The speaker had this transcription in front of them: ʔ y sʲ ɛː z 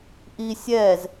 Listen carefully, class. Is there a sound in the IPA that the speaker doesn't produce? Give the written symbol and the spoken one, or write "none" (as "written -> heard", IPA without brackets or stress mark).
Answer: y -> i